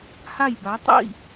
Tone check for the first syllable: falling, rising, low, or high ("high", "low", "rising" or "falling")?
falling